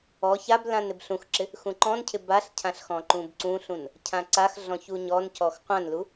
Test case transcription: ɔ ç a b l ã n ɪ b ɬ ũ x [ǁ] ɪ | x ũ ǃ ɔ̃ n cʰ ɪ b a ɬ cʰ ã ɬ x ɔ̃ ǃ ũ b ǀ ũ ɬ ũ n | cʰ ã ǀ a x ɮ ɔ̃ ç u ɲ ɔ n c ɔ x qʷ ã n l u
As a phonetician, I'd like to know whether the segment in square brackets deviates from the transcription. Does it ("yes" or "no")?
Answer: no